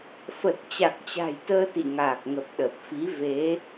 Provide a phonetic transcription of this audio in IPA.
f ə˨˩ t̚ t͡ɕ a˨˩ k̚ t͡ɕ a̤˨˩ j t̪ əː˧ t̪ ḭ˧˨ ŋ aː˨˩ k̚ ŋ ə˨˩ p̚ ɗ ə˨˩ p̚ f i˨˦ v e˨˦

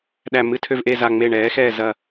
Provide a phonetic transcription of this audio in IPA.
ɗ æ˦˨ m ɨ˦˨ tʰ ø˦˨ v ʔ e˦˨ z a˦˨ ŋ͡m e˦˨ ɳ ɛː˨˥ x ɛː˦˨ z ɐ˦˨

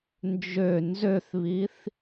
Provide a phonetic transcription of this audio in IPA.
n d͡ʒ ø n z ø θ β i θ

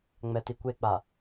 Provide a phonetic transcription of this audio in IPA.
ŋ͡m ɛ t i kʷ e k͡p a

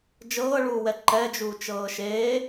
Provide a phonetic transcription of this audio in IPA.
d͡ʒ ɤː ɭ uː w ɛ ǃ ɛ d͡ʒ uː t͡ʃ ɤː ʃ eː

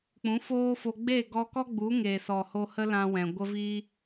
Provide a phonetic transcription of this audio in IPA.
k͡p ũ˨˦ f oː˦ f o˧ ɡ͡b e˦˨ ɡ ɔ˧ k ɔ˦ ɡ͡b u˨˦ ŋ e˨ s ɔ˨ h o˧ h ə˦ l ã˧ w ɛ̃˨ ɡʷ ə˧ v iː˧

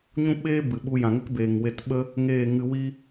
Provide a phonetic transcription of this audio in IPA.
ɲ ũ˦ ɓ eː˦ b ɨ˨ ɓ u˧ j ã˨ ŋ ə˦ k b eː˨ ŋ w e˧ t ɓ ə˦ | ŋ eː˦˨ ŋ ɨ˧ w i˦

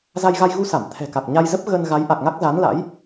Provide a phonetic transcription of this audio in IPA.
z a˧ j ɣ a˧ j ɣ u˧ s a˧˩ m t̪ʰ ɛ̤˨˩ k a˨˩ k̚ ɲ a˧ j z ə˦˥ p̚ ɣ ə˧ n ɣ a˨˦ j ʔ a˨˩ k̚ ŋ a˦˥ k̚ z a˨˦ n l a̰˧˥ j

